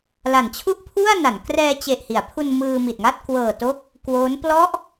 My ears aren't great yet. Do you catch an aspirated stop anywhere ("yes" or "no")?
yes